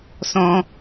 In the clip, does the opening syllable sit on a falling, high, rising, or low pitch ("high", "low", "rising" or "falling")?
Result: high